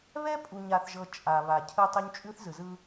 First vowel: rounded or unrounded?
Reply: unrounded